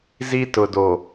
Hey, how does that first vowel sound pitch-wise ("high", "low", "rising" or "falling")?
high